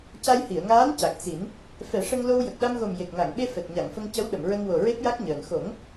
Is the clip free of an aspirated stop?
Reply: yes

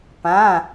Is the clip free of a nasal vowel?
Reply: no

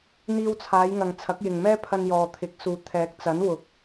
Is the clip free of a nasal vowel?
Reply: yes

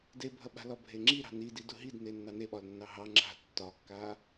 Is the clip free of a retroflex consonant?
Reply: yes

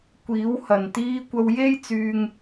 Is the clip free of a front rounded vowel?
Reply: no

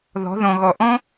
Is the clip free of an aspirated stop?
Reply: yes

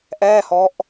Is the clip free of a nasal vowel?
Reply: yes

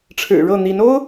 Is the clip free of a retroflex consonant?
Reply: no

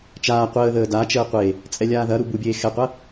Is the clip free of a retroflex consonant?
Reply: yes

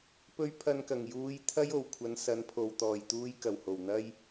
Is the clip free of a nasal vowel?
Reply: yes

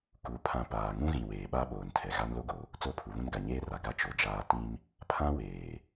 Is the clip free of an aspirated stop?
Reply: no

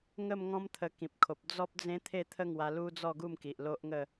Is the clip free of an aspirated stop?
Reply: no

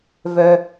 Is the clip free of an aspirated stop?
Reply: yes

